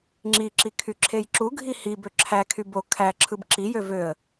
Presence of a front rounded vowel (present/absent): present